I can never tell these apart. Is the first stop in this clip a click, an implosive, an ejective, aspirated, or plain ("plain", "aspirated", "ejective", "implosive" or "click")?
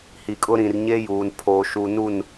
ejective